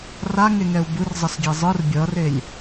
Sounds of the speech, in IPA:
r a ŋ e ŋ ɛ u̯ b ɯ r zˤ ʌ s ɡʲ e zˤ ɯ r bʲ ʌ r e lʲ

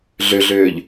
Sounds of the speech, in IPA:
ɮ ø ɮ øː ʎ

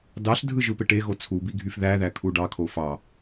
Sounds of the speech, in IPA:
d ɑ ɬ dʱ ɯ ʒ ɯ p e ʈ e ɣ o t͡sʰ u b i ɡʱ y f ð æ ð æ kʰ u ɖ ɑ kʰ o f ɑ

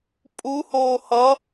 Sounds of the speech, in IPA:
pʼ u h oː h ʌ

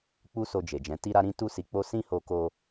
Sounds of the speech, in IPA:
k͡p u˦ s o˧ d͡ʒ e˨ d͡ʒ ɛ̃˨˦ t i˦ ɾ a˦ ɾ ĩ˦ t u˦ s i˧ k͡p o˦ s ĩ˦ h o˧ k o˧

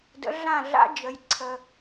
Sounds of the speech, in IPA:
d ə̰˨˥ ɮ ã˥˩ ɮ a̰˨˥ d͡ʒ ə˨ j ǀʰ ə˨

